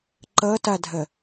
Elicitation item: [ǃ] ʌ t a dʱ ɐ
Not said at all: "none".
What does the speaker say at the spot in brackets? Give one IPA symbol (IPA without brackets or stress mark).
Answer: ǃ